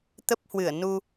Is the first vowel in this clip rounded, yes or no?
no